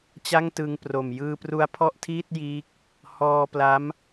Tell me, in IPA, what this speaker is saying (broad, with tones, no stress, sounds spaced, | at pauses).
t͡ɕ a˥˩ ŋ t ɯ˧ ŋ p r o˨˩ m j ɯː˧ p r u˦˥ a̯ pʰ ɔ˥˩ ʔ tʰ iː˥˩ t̚ j iː˦˥ k̚ | h ɔː˧ p l a˦˥ m